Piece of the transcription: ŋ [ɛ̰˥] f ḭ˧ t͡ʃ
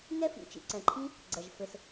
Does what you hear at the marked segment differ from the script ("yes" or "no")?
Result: yes